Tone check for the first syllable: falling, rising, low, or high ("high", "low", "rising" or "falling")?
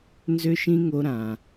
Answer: high